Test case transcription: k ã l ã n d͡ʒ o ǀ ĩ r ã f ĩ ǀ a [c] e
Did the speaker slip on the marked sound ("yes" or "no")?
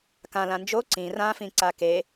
yes